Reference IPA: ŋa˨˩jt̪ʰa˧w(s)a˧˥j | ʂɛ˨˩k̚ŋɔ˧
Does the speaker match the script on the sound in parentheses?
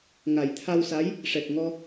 yes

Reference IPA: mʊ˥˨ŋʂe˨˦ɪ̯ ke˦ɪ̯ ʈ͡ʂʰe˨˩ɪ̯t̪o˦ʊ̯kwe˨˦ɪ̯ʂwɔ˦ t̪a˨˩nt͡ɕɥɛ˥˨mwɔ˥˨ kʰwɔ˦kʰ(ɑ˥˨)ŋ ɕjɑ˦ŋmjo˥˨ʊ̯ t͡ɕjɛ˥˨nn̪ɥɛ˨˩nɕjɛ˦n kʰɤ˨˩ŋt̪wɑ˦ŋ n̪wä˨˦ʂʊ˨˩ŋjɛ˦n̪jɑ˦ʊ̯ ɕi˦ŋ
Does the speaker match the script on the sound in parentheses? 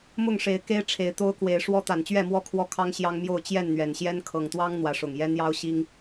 no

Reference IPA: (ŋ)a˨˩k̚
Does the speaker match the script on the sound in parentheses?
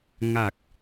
yes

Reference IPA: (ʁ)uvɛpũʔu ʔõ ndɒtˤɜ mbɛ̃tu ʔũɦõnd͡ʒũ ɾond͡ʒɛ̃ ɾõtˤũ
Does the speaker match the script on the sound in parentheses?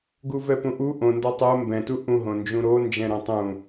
no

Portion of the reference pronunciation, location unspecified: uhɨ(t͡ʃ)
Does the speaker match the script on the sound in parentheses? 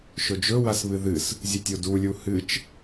yes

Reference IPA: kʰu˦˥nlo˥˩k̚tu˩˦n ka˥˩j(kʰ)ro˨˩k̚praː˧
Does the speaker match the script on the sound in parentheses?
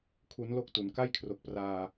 yes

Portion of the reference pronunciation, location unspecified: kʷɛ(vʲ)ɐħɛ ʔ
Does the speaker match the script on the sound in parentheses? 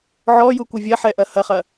yes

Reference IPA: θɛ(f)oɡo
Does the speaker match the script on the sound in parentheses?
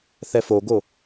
yes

